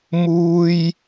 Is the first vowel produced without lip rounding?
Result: no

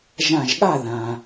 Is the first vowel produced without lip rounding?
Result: yes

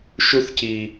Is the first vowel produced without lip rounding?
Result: no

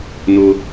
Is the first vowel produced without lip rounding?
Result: no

